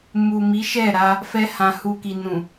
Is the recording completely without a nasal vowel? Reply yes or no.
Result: no